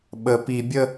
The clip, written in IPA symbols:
ɓ ə p i bʲ ə

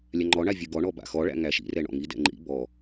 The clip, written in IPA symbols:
lʲ a ŋ͡ǃ ɔ ɳ a vʲ ɯ ɡ ɔ ɳ ɔ b a̰ x ɔ ɭ æ̰ ŋ æ ʃ ḭ r ɛ ɳ ɔ̰ ŋ i d ɛ̰ ŋ͡ǃ ḭ b ɔ

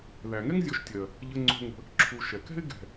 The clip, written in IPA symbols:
ð æ˩ ŋ ɛ˥ ŋ zʲ ɔ˨ ʃ tʲ ɜ˩ | ʎ ə˨ ŋ͡ǀ o̤˨ ŋ ə̤˨ | ǁʰ u˨ ʃ ɛ˩ k ɛ̤˥ ɪ̯ ɡ ɛ̤˩

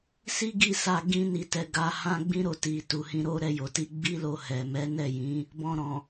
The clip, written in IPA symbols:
s i˦ ɡ i˦˨ s a˧ ɡ ĩ˦ n i˧ t ɛ˧ ɡ a˧ h ã˦ ɡ͡b ĩ˦ ɾ o˧ t i˨ t u˨ h ĩ˧ ɾ o˦ ɾ ɛ˧ j o˨ t i˧ ɡ͡b i˦ l o˧ h ɛ˨ m ɛ˨˦ n ɛ˦˨ j ĩ˨˦ | b ɔ̃˧ ɾ ɔ̃˨

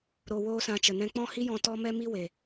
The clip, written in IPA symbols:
ɾ o˧ w oː˦ s ã˧ t͡ʃ ə˨ n ɛ̃˧ k͡p ɔ̃˦ h i˦ j ɔ̃˧ t ɔ˦ m ɛ˦ m i˦ w e˨

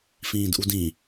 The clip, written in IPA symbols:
f ĩː d ʔ u d ĩ

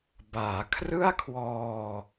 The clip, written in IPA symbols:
b aː˩˦ kʰ r ɯ˥˩ a̯ kʰ w ɔː˧

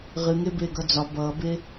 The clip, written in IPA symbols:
ʁ ɨ ŋ e b eː ɡ ʌ d͡z ɒ b ʌː b e

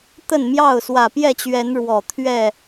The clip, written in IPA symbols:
t̪ ə˥˨ n m j ɑ˥˨ ʊ̯ s w ä˨˩ p j ɛ˥˨ t͡ɕ ɥ ɛ˨˦ n ɻ w ɔ˨˩ t̪ʰ ɥ ɛ˥˨

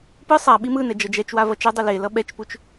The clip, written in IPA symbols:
p ɯ sˤ a ɓ i m ɯ n ɛ d͡ʒ ʌ d͡ʒ ɛ t͡ʃ w a v ʌ t͡ʃ ɛ dˤ e l e l ʌ ɓ ɛ t͡ʃ p u t͡ʃ

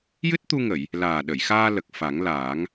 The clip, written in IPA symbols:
j ɨ˦˥ t̚ t̪ u˧ ŋ ə˨˩˨ j | l aː˨˩ ɗ ə˨˩˨ j x aː˧ l ə˨˩ k̚ f a˨˩˦ ŋ l aː˨˩˦ ŋ

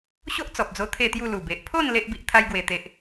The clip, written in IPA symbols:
ɕ o˦ ʔ t͡s ɔ˨ p̚ d͡z o˧ t̪ʰ e˥˧ t̪ j u˥˧ l u˨˩ b e˨ ʔ pʰ o˥˧ n l e˦ ʔ b i˦ ʔ t̪ʰ a˦ j ɡ w e˧ t̪ e˦ ʔ

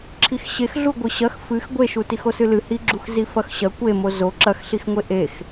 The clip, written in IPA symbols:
ǁʰ i x ɕ e x ɮ u ɡʷ ɨ ɕ ɐ x f ɨ x ɡʷ e ʃ u t i x o s ɨ l ɨ h i ɡ͡ǁ u x z i f ɐ x ɕ ɐ kʷ e m o z o ǁ ɐ x ɬ i x ŋʷ e ʔ e x

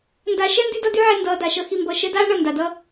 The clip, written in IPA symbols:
n d a˧ ʃ ɛ˦ n d y˦ d ʌ˦ d y˦ ʕ ɛ˧ n d ʌː˧ d a˨ ʃ ʌ˦ x i˧ m b ʌ˧ ʃ ɛ˦ d aː˦ ɳ ʌ˨ n d a˨ d ʌ˦

